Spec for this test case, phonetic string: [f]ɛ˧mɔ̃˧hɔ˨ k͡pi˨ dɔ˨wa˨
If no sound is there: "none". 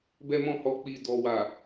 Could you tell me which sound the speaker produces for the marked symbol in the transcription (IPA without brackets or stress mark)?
b